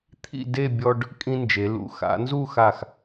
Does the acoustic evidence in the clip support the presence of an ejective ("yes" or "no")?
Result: yes